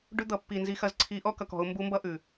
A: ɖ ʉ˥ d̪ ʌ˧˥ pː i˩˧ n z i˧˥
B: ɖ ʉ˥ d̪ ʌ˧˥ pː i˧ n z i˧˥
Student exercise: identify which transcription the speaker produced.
B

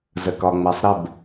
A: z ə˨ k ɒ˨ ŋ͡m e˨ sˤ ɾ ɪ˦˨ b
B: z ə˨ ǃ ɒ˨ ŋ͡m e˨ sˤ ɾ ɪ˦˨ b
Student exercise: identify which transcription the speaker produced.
A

